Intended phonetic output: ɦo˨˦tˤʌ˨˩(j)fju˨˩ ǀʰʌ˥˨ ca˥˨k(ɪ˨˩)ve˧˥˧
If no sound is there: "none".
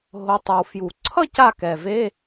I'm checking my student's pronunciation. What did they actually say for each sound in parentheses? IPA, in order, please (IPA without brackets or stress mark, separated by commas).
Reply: w, ɛ˨˩